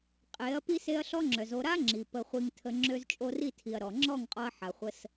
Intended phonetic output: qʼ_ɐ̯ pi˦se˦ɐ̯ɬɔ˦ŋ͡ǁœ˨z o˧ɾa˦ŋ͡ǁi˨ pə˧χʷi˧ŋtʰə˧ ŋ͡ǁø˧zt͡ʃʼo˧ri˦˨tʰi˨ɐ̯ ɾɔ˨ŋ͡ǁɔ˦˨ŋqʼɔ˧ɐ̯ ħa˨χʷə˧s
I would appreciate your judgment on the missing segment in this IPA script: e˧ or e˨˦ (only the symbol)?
e˨˦